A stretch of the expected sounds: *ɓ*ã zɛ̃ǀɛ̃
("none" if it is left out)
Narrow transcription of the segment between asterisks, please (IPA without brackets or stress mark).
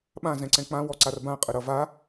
ɓ